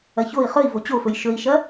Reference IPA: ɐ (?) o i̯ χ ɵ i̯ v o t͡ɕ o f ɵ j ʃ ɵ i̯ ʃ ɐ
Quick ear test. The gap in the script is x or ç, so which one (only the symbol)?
ç